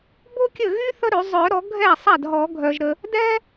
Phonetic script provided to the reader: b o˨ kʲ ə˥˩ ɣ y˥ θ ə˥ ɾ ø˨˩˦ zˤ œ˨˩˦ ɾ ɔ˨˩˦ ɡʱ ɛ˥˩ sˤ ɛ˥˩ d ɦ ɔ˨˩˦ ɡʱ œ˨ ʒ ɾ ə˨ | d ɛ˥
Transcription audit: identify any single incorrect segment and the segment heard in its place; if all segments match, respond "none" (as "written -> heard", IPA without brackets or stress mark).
o˨ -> o˥